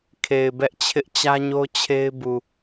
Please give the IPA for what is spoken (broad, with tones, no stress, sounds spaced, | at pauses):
kʰ e˨ ɪ̯ b ɛ˦ ʔ t͡ɕʰ ɪ˦ ʔ t͡ɕ ä˦ ɲ o˦ t͡ɕʰ e˦ ɪ̯ b u˨